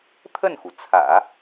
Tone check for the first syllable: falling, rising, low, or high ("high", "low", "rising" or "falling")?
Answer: falling